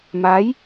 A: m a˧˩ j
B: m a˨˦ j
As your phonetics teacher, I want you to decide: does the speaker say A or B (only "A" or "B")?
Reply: B